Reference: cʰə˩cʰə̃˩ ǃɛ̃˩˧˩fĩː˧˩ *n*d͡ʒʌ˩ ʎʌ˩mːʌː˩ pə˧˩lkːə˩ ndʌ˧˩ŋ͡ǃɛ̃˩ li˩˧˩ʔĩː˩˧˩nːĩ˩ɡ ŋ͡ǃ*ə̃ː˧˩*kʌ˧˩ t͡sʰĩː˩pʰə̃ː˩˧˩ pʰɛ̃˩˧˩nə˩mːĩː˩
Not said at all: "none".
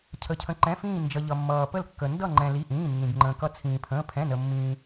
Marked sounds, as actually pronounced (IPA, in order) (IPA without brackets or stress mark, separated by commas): n, ə̃ː˩